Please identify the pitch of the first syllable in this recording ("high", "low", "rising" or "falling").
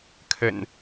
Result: low